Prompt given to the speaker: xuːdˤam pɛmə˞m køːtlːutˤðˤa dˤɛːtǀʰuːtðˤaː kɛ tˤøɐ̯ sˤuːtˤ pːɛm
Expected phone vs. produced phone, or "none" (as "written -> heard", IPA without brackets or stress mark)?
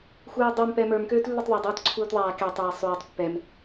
none